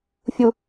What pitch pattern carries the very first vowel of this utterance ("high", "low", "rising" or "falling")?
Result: low